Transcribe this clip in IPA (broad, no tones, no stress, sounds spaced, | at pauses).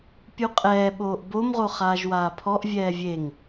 pʲ u qʼ ɛː ɓ oː ʔ b o m ʁ o χ aː ʒ w aː pʰ ɔ ʔ vʲ ɛː vʲ e ŋ